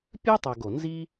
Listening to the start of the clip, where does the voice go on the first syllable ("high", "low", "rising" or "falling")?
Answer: high